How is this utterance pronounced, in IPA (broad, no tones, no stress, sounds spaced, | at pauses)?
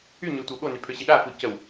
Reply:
y ɲ ø tʷ ə w ɠ o n y pʰ ø ɕ i ɗ a f u c ə w